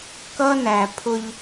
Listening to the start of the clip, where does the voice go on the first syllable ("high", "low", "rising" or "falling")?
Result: high